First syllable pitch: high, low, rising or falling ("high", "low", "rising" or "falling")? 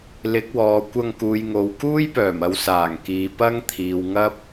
rising